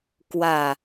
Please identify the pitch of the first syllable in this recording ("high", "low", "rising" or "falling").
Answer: falling